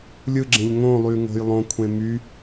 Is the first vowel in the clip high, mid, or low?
high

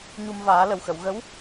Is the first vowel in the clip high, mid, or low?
high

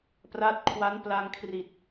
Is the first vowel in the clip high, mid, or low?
low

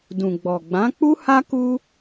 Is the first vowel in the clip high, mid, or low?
high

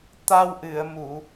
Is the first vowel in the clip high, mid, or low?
low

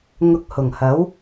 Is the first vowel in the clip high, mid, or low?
high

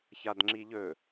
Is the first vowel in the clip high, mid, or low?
low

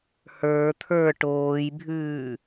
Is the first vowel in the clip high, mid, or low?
mid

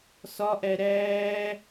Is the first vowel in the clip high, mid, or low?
low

